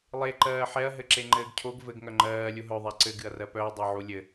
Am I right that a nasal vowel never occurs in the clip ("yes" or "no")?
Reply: yes